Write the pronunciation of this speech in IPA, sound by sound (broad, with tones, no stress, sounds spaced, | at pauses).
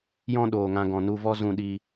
j ɔ̃˦ ɗ oː˨ ŋ ã˧ ɡ ɔ̃˨ n u˧ v ɔ˦ z ũ˧ ɗ i˧